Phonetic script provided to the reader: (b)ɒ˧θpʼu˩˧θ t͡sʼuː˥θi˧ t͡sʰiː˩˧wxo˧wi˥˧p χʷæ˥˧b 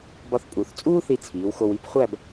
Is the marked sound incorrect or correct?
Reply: correct